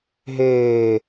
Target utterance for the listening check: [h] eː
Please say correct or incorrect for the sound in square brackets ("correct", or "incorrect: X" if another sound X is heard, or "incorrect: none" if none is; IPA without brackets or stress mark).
incorrect: ɦ